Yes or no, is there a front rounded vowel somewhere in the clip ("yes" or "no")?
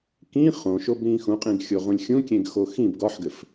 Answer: no